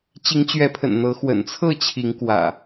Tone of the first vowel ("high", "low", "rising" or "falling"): rising